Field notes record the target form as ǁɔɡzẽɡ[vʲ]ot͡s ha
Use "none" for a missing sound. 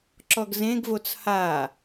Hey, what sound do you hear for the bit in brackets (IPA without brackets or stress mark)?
v